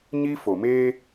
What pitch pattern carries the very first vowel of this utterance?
high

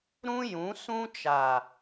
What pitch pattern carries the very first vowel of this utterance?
high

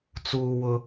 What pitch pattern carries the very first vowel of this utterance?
high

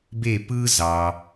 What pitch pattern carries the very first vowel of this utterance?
falling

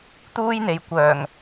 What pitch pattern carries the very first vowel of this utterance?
high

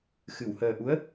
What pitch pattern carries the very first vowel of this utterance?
low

